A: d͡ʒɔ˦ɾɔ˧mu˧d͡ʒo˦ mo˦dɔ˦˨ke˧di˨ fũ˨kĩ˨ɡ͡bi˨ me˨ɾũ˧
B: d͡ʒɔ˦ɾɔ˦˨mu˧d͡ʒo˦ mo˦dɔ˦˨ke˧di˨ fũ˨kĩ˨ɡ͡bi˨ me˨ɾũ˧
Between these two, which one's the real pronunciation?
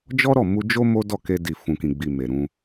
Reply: B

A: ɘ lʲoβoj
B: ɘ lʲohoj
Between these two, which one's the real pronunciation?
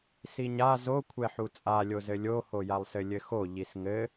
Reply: B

